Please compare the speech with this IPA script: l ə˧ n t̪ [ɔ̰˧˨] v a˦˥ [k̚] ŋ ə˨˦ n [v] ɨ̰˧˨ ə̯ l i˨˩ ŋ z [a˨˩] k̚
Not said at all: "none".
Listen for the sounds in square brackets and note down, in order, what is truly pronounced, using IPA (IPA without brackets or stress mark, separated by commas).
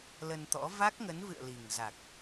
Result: ɔ̰˧˥, k̚, v, a˨˩